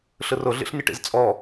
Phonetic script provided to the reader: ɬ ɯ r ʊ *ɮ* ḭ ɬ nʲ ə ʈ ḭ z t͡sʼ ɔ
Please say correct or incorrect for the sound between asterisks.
correct